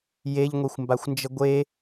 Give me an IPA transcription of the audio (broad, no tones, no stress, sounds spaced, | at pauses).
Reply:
j e ʎ ŋʷ e xʷ m b a xʷ n d͡ʒ ə ɡʷ e